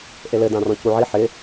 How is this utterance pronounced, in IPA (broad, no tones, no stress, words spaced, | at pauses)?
ʔelɘ dãrɔ̃cuʕi ħɪ